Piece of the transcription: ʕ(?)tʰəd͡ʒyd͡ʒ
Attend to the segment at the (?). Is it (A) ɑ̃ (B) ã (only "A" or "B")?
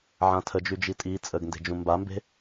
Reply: B